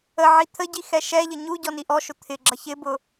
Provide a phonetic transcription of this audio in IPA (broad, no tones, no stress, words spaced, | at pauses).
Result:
əʕi t̪ʰəɟi xɛʃɛʎə ɲu ɟɔniʔɔʃʊ t̪ʰɪɡ͡ǁʌ çɪbʊ